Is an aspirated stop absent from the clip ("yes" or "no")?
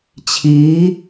no